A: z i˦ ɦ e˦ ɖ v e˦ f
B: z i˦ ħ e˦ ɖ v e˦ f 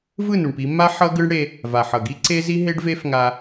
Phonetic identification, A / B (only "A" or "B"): A